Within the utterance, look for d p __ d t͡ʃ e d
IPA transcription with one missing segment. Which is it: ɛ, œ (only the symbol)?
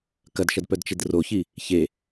œ